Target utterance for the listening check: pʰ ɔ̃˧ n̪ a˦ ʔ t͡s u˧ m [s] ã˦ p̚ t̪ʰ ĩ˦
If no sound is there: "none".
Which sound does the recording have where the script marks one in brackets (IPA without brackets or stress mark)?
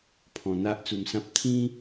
s